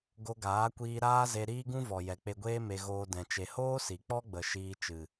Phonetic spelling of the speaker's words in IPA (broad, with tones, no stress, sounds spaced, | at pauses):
ɡ o˧ ɡ aː˨˦ kʷ iː˧ ɾ aː˦ z e˧ ɾ iː˦ ɡ ũ˦ v ɔ˨ j ɛ˨ k͡p e˧ ɡʷ eː˦ m e˧ ɣ oː˧ d ɛ̃˨ t͡ʃ e˨ h oː˦ s i˨ k͡p ɔ˦ ɡ͡b ə˨ ʃ iː˧ t͡ʃ ɨ˨